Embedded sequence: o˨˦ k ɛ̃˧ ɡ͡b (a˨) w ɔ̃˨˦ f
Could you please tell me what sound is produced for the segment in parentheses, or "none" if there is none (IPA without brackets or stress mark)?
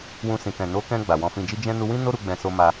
a˨